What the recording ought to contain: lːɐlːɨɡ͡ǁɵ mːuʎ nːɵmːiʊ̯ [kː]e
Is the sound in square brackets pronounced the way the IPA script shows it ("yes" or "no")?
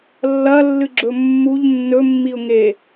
no